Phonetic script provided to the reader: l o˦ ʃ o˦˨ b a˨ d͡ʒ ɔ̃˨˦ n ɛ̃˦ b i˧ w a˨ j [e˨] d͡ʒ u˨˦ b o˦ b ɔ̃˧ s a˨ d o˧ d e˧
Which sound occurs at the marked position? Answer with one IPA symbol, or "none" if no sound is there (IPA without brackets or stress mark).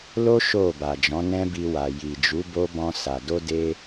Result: i˨